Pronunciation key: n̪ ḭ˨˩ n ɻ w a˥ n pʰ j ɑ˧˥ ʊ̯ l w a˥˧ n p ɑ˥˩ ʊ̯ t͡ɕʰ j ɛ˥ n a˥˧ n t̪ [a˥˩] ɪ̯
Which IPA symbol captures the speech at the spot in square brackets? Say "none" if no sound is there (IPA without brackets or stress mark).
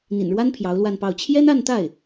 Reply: a˥˩